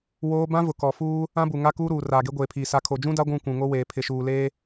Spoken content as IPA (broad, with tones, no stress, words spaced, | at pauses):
woː˦ bã˦vʊ˨ kɔ˨ fuː˦ | ã˦bu˨ŋa˦ kuː˦ɾuː˨ raː˨ɡe˦ɡʷeː˨pʰiː˨ sa˨kʰo˨d͡ʒũ˦da˦ ɡʷũ˦˨kʷũ˨ŋo˦weː˨ pʰɪ˨ʃuː˨leː˦